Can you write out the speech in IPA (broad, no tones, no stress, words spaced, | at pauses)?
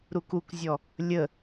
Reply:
ɾukukzʲɔ | lʲə